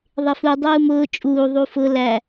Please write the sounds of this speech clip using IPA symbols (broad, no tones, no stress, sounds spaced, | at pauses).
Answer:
ðˤ ɪ f u dˤ uː m ʊː t͡ʃʼ uː ðˤ u f ʊ l æ